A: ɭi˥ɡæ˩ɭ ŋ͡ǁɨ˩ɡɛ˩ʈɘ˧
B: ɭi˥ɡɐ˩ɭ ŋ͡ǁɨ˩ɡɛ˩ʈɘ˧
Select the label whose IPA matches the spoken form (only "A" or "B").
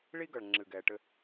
B